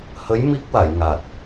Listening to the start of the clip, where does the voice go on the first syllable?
rising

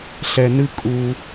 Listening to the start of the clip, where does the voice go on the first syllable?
low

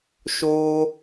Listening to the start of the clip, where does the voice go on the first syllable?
high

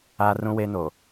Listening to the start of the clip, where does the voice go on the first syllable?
high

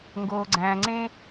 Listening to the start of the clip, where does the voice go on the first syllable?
low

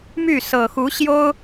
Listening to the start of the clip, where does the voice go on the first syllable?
falling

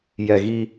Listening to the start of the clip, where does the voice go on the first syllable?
low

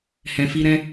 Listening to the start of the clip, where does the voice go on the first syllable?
low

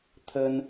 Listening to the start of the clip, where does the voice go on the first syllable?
high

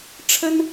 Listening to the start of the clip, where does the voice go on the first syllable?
high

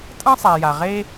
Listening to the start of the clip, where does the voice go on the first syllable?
high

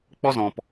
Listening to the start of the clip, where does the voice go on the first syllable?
high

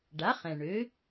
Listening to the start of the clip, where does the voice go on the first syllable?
rising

